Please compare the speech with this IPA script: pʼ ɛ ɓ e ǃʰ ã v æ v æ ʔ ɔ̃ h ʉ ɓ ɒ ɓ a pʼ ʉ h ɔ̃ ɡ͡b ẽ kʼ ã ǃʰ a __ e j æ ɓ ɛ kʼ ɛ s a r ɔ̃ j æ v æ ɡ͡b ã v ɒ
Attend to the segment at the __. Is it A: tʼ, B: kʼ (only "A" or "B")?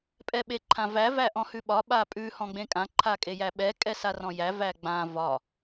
B